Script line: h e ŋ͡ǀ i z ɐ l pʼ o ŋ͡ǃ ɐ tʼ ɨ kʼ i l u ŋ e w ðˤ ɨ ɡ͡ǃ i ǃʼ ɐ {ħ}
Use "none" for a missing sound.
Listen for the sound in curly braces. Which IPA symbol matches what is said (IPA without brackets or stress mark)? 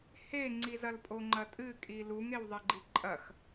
x